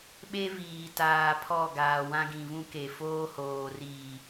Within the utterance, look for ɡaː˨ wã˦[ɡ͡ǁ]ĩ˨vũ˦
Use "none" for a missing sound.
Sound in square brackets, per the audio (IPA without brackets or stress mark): ɡ